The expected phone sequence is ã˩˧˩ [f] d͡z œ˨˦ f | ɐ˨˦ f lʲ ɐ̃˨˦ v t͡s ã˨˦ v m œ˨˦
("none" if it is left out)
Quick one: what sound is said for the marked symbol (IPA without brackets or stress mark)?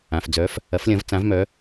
f